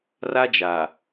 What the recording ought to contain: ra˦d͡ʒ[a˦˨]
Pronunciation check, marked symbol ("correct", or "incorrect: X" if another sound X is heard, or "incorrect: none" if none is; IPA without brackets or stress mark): incorrect: a˨